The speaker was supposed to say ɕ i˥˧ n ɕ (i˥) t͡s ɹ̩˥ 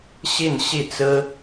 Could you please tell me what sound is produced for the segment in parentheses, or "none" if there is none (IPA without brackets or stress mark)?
i˥˩